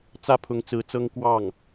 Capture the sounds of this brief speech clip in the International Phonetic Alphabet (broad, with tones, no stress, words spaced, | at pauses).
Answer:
t͡sä˥˩pʰʊ˧˥ŋt͡sɹ̩˧˥t͡sɤ˥ŋ kwɑ˥˩ŋ